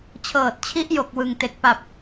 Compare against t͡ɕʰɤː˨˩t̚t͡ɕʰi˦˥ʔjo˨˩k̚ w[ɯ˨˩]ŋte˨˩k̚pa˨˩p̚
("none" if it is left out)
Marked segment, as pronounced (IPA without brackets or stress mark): ɯ˨˩